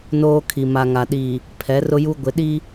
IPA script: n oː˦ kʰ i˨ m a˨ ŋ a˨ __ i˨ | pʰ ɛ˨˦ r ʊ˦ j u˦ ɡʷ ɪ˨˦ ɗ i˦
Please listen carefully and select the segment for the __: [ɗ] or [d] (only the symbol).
ɗ